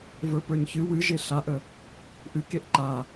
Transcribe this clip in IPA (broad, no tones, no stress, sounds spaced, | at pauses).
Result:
v ə˞ p ə˞ ɲ ç ɨ w ɨ ʒ e ɬ a ʔ ə | ʔ ɨ k e ʔ ǃ a